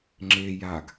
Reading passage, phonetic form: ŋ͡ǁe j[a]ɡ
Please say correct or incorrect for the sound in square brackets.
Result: correct